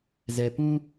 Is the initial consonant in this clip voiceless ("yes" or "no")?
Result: no